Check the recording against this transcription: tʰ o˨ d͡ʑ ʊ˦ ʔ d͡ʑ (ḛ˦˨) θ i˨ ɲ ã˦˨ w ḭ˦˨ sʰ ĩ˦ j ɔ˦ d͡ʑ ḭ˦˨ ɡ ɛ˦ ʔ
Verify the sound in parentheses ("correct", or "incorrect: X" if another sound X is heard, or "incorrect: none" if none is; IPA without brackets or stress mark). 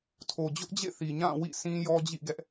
correct